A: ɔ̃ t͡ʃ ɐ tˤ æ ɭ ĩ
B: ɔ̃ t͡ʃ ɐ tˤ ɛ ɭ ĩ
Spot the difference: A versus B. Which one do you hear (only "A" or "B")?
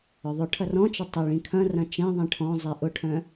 B